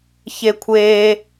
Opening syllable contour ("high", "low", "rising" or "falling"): high